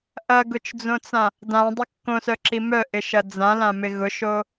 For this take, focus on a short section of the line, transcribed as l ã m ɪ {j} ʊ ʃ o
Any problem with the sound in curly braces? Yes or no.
yes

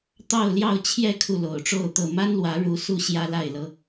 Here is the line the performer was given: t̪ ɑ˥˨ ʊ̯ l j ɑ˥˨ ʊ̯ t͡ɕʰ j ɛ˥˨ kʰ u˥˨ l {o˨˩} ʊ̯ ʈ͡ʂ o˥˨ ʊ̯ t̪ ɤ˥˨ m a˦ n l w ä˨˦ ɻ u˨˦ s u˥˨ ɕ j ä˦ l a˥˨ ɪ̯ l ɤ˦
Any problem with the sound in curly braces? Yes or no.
no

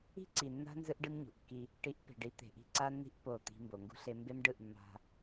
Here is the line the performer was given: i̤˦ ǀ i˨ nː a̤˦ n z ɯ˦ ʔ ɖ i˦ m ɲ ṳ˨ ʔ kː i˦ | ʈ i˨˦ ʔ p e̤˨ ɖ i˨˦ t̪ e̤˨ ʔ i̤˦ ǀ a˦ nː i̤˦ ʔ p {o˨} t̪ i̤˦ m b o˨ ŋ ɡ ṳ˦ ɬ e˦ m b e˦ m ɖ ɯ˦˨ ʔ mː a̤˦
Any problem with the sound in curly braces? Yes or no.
yes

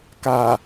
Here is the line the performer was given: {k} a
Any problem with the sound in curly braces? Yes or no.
no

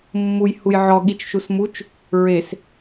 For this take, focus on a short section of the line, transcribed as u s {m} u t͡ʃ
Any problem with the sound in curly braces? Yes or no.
no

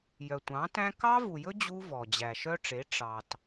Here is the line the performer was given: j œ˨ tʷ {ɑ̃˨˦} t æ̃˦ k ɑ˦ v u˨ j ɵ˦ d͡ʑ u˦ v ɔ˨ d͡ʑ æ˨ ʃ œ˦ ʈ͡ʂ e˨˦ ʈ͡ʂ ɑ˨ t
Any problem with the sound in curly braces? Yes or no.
no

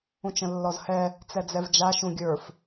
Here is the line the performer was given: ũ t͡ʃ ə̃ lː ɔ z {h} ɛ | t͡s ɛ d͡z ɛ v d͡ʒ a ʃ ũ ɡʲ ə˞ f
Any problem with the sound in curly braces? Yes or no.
no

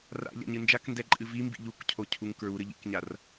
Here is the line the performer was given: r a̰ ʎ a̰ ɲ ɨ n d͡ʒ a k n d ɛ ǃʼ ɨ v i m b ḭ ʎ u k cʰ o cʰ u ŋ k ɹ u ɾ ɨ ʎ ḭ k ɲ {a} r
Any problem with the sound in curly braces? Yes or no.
no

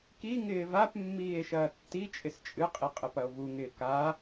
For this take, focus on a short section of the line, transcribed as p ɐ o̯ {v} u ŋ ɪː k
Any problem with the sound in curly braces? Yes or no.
no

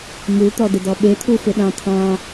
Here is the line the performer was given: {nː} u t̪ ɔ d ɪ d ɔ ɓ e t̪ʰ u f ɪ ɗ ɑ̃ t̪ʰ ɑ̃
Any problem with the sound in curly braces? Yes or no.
yes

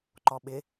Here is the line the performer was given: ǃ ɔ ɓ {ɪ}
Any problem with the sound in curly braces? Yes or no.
no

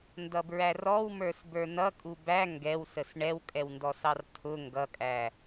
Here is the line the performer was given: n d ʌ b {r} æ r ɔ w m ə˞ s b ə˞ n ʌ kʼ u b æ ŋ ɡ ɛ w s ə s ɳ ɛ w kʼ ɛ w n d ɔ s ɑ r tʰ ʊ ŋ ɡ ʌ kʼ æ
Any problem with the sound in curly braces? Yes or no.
yes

